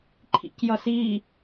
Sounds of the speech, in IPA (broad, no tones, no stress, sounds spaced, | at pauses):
ǃʰ ḭ c j ʌ s i